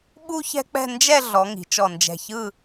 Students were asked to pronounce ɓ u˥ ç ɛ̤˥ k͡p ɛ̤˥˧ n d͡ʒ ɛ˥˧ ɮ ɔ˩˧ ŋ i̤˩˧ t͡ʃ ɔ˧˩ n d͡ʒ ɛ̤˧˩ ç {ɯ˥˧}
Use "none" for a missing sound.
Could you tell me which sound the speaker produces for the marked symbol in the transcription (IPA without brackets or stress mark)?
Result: ɯ˥˧